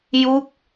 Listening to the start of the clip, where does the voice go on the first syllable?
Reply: falling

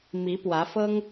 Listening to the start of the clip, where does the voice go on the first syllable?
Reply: rising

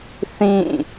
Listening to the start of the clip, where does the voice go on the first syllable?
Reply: falling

